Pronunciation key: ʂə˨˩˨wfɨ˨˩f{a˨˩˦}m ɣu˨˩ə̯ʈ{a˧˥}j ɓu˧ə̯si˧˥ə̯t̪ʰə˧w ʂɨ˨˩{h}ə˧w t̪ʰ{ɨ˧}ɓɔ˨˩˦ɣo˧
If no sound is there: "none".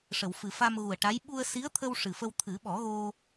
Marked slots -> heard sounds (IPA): a˧, a˧˥, f, ɨ˨˩˦

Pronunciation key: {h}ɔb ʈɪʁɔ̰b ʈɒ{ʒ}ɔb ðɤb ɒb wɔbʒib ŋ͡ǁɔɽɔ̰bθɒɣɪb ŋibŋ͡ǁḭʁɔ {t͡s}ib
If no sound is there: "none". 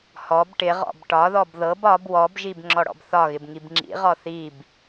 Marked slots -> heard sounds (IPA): h, ð, θ

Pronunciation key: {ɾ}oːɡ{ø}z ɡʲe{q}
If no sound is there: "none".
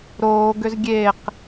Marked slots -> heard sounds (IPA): ɾ, ø, q

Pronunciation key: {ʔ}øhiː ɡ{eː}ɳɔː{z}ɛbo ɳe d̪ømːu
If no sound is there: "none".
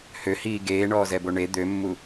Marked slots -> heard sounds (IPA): h, eː, z

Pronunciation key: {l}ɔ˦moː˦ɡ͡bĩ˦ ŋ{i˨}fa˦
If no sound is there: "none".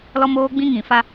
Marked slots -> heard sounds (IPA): l, ĩ˨

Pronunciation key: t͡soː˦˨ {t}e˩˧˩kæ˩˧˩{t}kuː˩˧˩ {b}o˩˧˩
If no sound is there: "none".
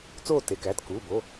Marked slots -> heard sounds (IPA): t, t, b

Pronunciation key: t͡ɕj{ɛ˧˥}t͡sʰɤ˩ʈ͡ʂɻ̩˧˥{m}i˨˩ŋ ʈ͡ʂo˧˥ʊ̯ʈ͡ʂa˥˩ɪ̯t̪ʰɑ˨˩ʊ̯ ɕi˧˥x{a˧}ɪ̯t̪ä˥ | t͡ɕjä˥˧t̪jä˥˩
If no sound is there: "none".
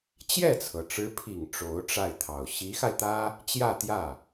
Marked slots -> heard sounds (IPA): ɛ˥˩, pʰ, a˧

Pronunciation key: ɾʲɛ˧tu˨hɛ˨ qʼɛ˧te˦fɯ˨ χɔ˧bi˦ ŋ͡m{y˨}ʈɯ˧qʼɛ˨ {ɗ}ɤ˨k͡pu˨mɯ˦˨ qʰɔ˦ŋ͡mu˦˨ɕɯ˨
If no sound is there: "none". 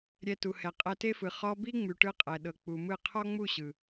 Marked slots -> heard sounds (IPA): y˨, ɗ

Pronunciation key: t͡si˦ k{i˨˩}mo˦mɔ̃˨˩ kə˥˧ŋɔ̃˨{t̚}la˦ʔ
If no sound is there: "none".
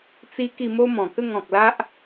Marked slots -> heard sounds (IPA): i˥˧, k̚

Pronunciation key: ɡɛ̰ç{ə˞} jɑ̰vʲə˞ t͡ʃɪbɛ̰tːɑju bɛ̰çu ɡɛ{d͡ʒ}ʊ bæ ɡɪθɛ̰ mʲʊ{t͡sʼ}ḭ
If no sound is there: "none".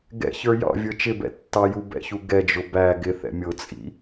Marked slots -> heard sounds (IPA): ə˞, d͡ʒ, t͡sʼ

